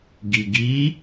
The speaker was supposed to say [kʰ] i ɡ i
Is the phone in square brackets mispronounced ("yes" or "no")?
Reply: yes